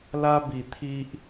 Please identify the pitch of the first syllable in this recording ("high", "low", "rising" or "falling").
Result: high